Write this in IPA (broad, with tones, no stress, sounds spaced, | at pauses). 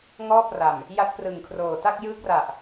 ŋ ɔː˥˩ p̚ r a˨˩ m | j a˦˥ t̚ p r ɯ˨˩ ŋ kʰ r oː˨˩ t a˥˩ k̚ j ɯː˦˥ k̚ r a˨˩ ʔ